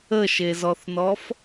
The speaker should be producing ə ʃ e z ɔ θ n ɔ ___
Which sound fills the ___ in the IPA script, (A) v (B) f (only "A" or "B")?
B